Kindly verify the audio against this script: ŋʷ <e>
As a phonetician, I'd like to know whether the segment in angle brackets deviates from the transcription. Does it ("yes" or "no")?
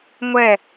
yes